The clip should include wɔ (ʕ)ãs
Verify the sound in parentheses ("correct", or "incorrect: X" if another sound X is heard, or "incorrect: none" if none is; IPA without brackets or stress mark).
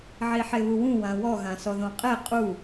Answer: incorrect: ɣ